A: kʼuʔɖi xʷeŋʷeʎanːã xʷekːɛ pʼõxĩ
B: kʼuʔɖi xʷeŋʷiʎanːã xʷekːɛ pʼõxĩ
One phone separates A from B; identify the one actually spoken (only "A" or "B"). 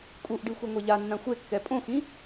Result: A